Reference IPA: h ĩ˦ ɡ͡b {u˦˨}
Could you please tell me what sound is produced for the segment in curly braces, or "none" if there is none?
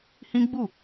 u˦˨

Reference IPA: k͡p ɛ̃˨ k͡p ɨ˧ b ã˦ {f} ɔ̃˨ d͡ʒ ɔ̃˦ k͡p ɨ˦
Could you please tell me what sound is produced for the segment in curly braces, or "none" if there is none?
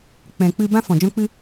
f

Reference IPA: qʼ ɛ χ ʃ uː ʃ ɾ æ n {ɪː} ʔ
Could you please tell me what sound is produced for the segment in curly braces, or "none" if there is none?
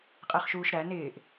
ɪː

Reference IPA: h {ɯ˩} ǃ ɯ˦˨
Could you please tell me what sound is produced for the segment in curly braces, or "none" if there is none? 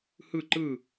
ɯ˦˨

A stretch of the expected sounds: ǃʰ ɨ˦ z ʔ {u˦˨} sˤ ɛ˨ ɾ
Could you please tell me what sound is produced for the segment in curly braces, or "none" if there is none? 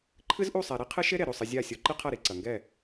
u˦˨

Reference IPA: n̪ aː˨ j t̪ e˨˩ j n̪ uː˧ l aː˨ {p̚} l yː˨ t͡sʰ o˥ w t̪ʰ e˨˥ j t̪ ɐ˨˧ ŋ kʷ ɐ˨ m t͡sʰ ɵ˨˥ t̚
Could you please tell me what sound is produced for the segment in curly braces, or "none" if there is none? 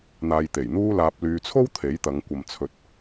p̚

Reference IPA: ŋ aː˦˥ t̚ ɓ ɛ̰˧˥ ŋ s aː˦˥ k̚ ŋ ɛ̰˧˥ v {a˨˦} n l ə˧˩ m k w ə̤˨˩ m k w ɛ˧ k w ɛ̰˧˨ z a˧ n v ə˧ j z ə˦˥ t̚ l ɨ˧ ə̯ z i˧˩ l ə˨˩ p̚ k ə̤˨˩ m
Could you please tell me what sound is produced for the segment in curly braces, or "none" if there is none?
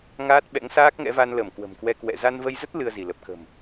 a˧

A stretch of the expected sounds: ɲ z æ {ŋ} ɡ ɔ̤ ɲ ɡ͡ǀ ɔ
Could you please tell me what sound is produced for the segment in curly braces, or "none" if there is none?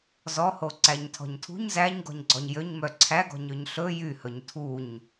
ɲ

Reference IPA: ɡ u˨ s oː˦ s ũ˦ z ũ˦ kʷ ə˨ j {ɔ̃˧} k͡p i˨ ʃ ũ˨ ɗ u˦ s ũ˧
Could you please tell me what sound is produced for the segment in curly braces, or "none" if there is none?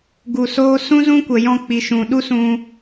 ɔ̃˧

